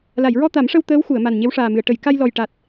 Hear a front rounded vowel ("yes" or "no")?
no